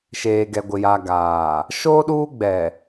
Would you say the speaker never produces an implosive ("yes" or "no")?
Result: no